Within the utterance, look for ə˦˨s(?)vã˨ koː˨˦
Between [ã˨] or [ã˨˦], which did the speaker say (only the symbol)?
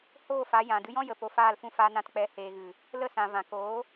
ã˨